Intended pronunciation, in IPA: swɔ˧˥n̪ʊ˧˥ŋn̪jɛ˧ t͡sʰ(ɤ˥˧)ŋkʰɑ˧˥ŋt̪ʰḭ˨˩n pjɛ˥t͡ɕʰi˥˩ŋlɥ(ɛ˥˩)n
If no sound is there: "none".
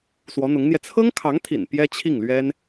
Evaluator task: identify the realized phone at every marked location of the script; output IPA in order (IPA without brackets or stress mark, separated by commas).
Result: ɤ˥, ɛ˥